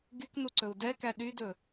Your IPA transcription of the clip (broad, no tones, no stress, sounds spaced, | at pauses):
ɡ y k n u ǀ ɵ u̯ d ɛ k æ ɗ y d ɵ